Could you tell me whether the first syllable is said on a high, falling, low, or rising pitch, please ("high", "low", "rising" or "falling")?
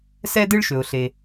high